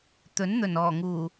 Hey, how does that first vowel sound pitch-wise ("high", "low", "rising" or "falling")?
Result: rising